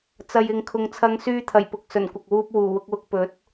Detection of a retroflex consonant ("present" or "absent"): absent